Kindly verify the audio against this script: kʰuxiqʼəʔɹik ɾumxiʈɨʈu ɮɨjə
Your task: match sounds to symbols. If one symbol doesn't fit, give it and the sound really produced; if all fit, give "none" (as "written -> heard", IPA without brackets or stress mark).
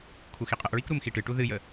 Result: ɮ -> ð